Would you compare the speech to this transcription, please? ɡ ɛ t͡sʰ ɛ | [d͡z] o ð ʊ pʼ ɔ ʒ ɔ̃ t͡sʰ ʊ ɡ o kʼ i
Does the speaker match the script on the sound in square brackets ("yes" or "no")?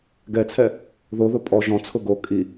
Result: no